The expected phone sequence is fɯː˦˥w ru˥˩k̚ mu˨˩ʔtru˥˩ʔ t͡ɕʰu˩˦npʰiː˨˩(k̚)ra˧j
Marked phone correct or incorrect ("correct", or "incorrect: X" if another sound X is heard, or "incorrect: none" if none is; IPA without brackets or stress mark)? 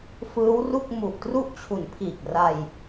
correct